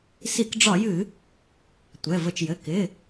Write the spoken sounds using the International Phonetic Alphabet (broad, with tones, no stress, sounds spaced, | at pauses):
s i˧˩˧ k ɖ͡ʐ ɒ˧˩˧ j ɨ˧˩˧ | tʷ ɛ˩˧˩ v ə˧˩˧ t͡ʃ j ɘ˩˧˩ k ɪ˩˧˩